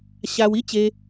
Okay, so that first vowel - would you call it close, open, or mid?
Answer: open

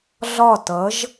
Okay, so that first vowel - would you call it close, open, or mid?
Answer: open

